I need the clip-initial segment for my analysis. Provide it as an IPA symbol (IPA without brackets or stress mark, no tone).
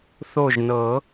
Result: θ